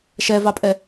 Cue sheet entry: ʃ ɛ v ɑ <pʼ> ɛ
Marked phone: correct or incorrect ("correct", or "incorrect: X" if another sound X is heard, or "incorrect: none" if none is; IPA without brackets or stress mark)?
correct